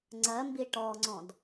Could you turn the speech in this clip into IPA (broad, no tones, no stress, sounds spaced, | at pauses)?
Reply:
ŋ͡ǀ ɜ m b i ʈ ɔ ŋ͡ǀ ɔ̃ d